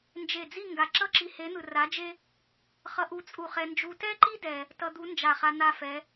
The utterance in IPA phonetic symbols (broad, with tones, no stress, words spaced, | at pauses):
nd͡ʒe˧˩d͡zi˥˧ ŋɡa˧˩ ǁʌ˥ǁi˧he˧˥n̪ɯ˧ ra˧˥d͡ʒe˥ | χʌ˧ʔu˧t͡sʼu˧˩χɛ˧ nd͡ʒu˧tɛ˥ǃi˥ dɛ˧ | tʌ˧d̪u˧˥nd͡ʒa˧˩χa˧ n̪a˥˧fɛ˧˥